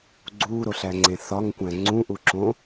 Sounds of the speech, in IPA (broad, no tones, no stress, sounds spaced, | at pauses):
ɡ͡ǀ uː ɾ o ɬ æ ŋ͡ǀ ẽ θ ɒ ŋ kʷ æ̃ ŋ͡ǀ ũ ʔ u ǁ õ